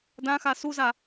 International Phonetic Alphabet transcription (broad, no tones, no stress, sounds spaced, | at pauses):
d ã x a s u z a